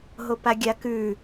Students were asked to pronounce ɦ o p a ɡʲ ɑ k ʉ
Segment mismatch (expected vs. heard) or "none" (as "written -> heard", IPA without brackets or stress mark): ɑ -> a